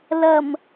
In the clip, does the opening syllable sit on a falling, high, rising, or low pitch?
low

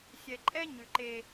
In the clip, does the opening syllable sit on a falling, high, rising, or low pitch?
low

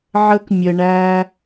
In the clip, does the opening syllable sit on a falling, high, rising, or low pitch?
high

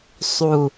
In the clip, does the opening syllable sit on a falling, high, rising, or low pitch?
low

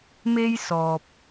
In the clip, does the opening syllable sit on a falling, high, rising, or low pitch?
high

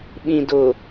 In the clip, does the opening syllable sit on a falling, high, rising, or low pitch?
low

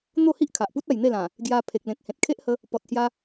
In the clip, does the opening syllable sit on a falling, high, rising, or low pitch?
falling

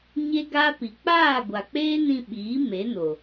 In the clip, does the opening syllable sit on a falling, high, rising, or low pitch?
high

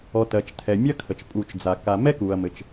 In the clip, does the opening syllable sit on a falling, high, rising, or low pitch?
low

